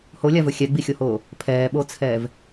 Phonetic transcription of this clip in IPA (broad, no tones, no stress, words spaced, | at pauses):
holʲavɵ xʲɛɡ͡bixʲohoː | pʰɛːɓot͡sʰɛːv